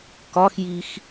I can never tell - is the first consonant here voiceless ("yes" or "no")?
yes